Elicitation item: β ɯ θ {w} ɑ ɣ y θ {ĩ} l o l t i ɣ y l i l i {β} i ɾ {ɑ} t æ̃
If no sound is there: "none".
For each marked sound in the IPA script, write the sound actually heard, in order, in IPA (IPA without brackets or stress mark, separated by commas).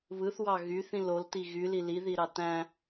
w, ĩ, ð, ɑ